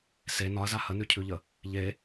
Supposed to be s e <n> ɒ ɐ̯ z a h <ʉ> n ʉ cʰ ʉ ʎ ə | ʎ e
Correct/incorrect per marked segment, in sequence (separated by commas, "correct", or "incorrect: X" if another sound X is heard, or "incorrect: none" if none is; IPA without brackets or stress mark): correct, incorrect: ə